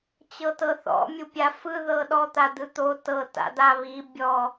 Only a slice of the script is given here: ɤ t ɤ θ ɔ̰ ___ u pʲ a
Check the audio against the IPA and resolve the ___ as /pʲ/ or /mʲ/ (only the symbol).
mʲ